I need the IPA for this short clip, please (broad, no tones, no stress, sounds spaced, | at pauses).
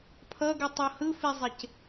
pʰ ʌ ɡ u tˤ o h ɯ f i zˤ e c